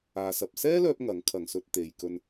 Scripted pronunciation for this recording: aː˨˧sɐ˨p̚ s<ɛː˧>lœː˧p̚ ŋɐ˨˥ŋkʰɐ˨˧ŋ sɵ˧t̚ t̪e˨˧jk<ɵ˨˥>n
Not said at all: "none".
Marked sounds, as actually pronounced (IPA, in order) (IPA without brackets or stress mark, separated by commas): ɛː˥, ɵ˧